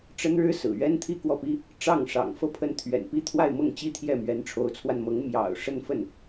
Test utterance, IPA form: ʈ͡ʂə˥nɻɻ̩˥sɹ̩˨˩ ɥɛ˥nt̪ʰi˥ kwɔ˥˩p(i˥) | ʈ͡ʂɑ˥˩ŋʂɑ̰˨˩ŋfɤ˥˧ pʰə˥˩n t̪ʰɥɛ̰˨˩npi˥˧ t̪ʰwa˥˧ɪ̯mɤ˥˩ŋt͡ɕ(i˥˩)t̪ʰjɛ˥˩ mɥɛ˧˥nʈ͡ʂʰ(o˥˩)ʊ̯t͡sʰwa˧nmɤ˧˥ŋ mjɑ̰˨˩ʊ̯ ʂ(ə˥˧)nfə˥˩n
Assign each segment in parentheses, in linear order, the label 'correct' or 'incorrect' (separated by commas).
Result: correct, incorrect, incorrect, correct